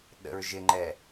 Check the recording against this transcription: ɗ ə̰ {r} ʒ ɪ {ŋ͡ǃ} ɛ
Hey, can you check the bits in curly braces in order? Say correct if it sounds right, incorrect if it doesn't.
incorrect, correct

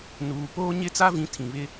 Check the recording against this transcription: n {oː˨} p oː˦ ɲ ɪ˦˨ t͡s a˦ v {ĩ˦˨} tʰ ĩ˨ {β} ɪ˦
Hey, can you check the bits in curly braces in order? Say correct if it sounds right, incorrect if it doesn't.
incorrect, incorrect, correct

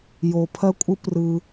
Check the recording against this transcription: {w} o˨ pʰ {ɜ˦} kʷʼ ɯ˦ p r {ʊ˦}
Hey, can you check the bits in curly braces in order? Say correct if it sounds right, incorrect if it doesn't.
incorrect, correct, incorrect

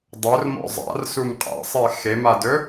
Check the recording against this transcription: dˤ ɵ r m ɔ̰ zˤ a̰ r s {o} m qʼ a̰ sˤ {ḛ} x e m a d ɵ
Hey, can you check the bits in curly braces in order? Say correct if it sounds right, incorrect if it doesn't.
incorrect, incorrect

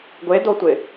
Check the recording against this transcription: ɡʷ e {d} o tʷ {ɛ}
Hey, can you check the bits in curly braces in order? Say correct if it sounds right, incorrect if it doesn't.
correct, incorrect

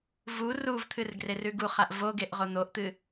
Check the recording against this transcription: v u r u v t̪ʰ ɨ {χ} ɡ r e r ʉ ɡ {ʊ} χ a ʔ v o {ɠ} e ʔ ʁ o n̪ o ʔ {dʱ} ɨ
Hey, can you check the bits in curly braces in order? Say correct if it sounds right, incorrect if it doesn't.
incorrect, incorrect, incorrect, incorrect

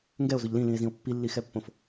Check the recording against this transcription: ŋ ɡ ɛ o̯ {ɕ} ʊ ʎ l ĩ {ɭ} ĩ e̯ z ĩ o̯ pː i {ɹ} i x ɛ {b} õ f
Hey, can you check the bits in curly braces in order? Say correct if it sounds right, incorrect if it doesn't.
incorrect, incorrect, incorrect, incorrect

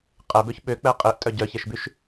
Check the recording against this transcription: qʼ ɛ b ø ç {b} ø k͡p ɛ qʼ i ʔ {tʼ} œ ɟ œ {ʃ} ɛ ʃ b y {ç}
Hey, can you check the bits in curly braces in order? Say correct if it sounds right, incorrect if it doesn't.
incorrect, correct, incorrect, incorrect

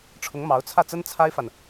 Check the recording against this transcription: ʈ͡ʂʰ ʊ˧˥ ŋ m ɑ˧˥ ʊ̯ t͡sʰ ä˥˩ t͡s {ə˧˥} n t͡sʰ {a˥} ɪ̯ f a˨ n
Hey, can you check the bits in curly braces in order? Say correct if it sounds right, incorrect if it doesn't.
incorrect, correct

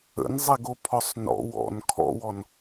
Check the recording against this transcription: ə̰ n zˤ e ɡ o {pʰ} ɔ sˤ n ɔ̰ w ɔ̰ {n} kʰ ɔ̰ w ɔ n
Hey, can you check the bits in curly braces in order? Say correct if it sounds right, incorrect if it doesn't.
correct, correct

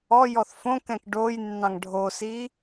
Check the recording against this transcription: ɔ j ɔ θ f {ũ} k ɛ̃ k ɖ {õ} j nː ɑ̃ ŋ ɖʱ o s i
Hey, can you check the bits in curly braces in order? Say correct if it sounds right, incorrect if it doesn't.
incorrect, incorrect

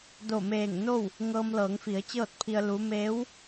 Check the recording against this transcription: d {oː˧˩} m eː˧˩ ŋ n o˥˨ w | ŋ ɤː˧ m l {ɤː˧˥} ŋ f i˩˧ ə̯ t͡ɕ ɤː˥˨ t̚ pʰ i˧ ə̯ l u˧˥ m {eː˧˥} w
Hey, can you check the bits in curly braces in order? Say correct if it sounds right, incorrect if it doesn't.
incorrect, incorrect, correct

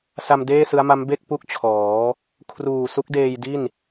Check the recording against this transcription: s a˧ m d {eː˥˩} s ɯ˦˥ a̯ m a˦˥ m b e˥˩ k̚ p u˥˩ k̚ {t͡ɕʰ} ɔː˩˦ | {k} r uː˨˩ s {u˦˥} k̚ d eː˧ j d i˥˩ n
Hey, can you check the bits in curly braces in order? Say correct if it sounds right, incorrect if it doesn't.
correct, correct, incorrect, correct

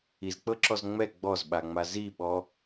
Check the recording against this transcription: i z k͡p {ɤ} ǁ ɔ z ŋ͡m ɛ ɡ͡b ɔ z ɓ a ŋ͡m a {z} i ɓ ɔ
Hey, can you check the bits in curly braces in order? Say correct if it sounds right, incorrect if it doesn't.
correct, correct

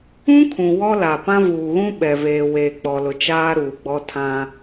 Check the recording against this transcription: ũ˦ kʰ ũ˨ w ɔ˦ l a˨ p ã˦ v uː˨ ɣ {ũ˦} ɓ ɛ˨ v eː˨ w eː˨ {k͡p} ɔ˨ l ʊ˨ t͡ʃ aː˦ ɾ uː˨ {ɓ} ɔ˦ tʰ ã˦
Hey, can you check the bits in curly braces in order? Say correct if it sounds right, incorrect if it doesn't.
correct, correct, incorrect

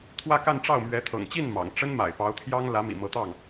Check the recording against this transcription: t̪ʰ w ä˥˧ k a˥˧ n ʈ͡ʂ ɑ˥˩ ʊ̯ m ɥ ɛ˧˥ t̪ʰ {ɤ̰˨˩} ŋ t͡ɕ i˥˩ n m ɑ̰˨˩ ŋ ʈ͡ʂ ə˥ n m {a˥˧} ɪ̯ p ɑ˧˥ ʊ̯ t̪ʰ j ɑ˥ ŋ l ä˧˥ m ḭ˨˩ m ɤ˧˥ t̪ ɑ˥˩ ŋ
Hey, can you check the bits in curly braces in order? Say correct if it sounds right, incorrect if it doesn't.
correct, incorrect

